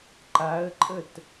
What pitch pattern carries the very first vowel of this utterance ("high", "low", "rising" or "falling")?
rising